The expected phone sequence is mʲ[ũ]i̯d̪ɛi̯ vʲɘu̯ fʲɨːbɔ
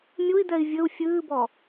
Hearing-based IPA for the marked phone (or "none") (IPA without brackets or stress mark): u